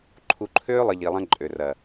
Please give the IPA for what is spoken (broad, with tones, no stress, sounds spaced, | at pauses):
ǃʰ u˨ ǃʰ øː˦ lˠ ə˨ ʎ i˨ lˠ ɐ̃˦ ǃʼ ø˨ r ɐ˨